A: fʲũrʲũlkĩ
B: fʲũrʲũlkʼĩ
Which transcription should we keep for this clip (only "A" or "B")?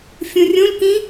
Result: A